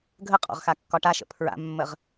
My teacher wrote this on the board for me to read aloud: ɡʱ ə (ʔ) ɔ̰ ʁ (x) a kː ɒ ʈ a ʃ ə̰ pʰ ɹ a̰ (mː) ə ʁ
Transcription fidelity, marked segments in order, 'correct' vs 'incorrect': incorrect: qʼ, correct, correct

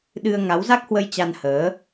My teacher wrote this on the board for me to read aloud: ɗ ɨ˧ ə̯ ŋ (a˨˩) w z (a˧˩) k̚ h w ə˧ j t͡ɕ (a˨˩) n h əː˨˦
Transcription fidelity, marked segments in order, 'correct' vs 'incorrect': incorrect: a˨˦, incorrect: a˦˥, incorrect: a˧

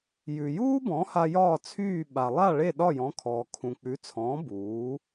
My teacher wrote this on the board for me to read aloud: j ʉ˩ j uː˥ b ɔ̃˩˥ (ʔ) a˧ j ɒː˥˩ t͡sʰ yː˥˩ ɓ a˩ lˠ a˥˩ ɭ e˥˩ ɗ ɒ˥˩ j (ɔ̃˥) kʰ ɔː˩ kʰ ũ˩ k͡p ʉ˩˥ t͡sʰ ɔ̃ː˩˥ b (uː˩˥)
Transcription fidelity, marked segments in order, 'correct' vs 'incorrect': incorrect: h, incorrect: ɔ̃˩˥, correct

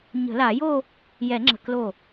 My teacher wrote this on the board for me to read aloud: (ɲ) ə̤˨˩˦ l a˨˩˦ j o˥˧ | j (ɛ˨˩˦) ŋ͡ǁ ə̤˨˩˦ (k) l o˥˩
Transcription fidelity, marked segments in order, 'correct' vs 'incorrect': correct, correct, correct

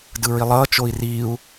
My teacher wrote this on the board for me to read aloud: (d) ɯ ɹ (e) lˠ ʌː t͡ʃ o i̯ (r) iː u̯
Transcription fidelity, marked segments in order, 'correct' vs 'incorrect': correct, incorrect: i, correct

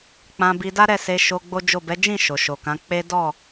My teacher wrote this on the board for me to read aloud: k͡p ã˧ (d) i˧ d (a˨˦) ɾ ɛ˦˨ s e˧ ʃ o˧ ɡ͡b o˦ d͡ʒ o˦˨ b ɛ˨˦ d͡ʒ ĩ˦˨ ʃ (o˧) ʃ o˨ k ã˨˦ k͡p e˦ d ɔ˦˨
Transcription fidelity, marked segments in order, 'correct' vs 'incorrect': incorrect: b, incorrect: a˦, incorrect: o˨

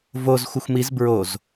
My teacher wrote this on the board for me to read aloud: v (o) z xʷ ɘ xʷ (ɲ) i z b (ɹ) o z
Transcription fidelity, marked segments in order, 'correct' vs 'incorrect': correct, incorrect: m, correct

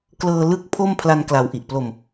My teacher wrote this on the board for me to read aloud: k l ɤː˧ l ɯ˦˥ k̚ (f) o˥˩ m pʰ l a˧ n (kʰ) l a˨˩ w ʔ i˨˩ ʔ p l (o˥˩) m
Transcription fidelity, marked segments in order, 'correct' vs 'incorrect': incorrect: pʰ, incorrect: k, incorrect: o˧

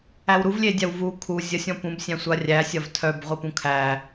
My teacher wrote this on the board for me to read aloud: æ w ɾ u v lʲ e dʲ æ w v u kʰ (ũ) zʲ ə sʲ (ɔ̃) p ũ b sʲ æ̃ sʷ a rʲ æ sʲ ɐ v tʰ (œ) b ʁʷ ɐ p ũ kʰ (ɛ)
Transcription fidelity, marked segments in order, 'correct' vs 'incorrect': incorrect: u, correct, correct, incorrect: æ

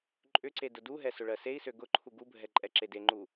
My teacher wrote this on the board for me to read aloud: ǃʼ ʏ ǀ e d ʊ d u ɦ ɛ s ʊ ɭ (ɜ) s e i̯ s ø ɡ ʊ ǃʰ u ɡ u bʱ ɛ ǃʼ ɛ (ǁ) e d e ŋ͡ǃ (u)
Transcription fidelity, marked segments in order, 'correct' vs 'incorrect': correct, correct, correct

